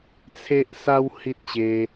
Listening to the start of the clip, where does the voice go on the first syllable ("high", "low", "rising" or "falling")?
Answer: high